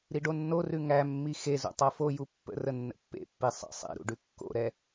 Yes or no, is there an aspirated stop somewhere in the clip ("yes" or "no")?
no